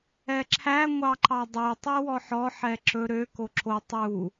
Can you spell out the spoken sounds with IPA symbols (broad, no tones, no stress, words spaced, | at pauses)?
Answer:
ɛǁʰæ ŋʷɑǃɑdˤø tˤywɔħɔ ħɛǁɵ ɾø koǁʰo tˤu